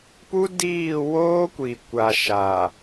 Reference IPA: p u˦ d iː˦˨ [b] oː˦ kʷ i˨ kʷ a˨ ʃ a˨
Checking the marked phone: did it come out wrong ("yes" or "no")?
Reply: yes